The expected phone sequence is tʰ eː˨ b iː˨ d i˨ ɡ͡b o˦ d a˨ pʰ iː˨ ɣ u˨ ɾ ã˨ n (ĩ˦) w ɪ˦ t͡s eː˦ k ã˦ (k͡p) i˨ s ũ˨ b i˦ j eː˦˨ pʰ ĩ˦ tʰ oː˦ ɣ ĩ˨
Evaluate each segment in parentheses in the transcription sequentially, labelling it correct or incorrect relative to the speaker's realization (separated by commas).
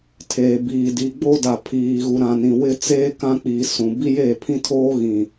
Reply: incorrect, correct